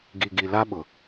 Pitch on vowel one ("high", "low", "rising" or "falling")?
low